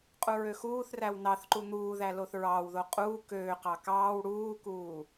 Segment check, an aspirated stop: absent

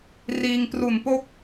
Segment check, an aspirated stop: absent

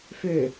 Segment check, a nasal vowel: absent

